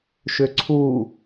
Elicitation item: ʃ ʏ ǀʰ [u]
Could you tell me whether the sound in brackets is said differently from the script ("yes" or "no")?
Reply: no